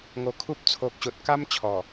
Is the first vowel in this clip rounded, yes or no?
yes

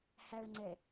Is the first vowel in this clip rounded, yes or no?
no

